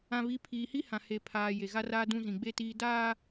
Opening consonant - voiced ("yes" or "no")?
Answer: yes